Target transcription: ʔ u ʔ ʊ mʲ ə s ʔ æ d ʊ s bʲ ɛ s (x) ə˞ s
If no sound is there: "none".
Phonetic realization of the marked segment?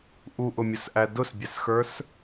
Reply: x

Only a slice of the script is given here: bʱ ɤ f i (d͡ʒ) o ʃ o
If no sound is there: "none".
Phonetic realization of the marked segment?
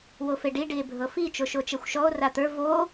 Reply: t͡ʃ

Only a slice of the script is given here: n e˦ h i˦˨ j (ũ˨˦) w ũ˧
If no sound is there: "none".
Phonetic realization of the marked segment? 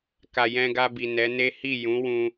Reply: ũ˨˦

